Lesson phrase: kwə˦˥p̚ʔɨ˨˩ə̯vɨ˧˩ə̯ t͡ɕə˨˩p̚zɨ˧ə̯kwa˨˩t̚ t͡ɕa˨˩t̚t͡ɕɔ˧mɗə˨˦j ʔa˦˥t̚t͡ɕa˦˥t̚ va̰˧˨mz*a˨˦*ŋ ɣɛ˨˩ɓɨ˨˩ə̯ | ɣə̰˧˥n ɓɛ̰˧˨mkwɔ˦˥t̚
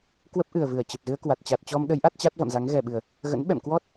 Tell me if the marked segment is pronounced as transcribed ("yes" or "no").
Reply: yes